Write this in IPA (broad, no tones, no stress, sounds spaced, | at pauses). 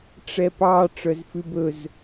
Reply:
ʈ͡ʂ ɛ p ɑ ʈ͡ʂ œ z f ʉ b ɵ z